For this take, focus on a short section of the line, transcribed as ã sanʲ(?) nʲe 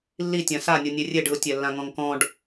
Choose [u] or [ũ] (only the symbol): u